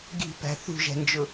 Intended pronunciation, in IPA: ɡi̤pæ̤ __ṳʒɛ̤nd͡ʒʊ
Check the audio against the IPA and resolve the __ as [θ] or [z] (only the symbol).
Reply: θ